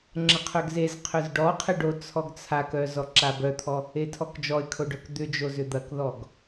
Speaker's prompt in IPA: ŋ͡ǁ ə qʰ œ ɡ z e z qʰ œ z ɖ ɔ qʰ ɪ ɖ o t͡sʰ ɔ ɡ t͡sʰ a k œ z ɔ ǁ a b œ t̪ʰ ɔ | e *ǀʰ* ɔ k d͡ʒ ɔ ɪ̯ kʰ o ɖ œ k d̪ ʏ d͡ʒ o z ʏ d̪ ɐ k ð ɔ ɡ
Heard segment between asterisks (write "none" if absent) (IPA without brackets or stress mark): tʰ